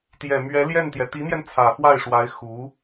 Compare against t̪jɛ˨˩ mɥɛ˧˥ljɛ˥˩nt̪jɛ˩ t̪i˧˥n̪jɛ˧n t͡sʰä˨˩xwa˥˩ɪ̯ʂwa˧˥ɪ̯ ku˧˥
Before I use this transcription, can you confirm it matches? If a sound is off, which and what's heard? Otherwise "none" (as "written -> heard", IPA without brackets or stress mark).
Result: k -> x